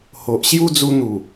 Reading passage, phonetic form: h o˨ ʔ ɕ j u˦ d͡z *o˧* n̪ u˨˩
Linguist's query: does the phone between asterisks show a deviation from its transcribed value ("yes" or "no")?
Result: yes